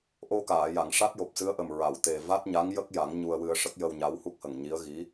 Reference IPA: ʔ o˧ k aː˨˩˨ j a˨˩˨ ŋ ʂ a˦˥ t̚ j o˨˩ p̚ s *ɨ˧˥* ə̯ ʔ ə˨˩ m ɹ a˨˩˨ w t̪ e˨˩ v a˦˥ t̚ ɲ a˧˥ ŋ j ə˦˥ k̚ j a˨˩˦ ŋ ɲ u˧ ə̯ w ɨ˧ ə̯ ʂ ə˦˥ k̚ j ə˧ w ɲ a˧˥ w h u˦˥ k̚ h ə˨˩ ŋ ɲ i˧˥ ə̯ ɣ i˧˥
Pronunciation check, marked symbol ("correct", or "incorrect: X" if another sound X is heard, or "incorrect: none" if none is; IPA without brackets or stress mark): correct